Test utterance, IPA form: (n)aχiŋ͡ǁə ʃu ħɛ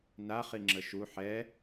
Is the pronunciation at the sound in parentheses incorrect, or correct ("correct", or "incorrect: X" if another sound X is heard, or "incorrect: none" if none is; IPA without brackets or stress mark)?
correct